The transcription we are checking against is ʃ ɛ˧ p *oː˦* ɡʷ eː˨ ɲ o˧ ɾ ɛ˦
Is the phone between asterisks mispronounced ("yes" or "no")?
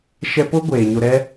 yes